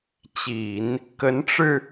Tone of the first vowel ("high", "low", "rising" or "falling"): low